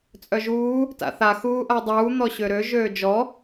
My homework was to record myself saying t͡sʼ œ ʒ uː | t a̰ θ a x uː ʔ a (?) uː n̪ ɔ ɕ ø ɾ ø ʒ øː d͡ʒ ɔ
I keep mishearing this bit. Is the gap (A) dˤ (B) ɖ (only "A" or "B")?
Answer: A